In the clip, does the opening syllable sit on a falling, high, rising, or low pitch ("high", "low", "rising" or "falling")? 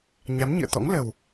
rising